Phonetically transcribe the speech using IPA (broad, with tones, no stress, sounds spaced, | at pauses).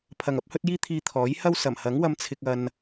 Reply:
pʰ ɐ˨ ŋ ɐ˨˥ p̚ h ɵ˥ t̚ j iː˥ t̪ʰ iː˧ t̪ʰ ɔː˨˥ j h ɐ˥ w s ɐ˨˩ m h ɐ˨˥ ŋ w ɐ˧ m t͡sʰ ɪ˧ k̚ ɐ˧ n